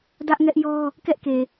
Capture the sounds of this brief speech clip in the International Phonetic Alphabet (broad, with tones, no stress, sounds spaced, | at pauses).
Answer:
d ä˦ ʔ ŋ ɛ˦ ʔ j ɔ˦ | k ɛ˦ ʔ k e˨